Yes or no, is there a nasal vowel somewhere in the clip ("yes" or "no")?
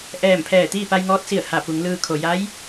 no